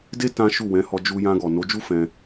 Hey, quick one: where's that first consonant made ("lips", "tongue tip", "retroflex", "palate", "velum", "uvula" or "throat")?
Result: tongue tip